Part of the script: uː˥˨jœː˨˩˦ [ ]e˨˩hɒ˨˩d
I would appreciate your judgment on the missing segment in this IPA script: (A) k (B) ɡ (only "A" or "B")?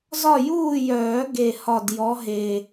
B